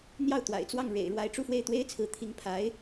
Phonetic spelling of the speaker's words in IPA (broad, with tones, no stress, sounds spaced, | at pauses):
n̪ j ɑ˥˩ ʊ̯ t̪ w a̰˨˩ ɪ̯ t͡s w ɑ˥˩ ŋ ɻ ḛ˨˩ ɪ̯ ɻ w a˧˥ ɪ̯ ʈ͡ʂ u˥˧ f w e˥˩ ɪ̯ t̪ w e˥ ɪ̯ t͡sʰ ɹ̩˧˥ t̪ʰ i˧˥ ŋ pʰ a˧˥ ɪ̯